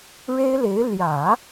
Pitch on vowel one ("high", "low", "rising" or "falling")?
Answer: high